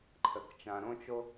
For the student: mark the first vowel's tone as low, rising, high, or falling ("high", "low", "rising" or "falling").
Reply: low